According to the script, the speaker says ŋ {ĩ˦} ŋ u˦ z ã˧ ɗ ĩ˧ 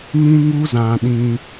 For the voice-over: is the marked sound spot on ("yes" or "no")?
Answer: yes